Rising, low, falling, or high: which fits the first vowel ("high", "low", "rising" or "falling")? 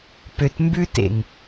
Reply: low